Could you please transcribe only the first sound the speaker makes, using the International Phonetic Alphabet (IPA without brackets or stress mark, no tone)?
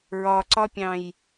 ɹ